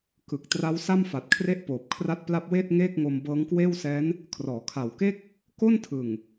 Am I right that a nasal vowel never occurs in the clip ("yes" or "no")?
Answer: yes